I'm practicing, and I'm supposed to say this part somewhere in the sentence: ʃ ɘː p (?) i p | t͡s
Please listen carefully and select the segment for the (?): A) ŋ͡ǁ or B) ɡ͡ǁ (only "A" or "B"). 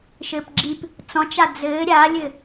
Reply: B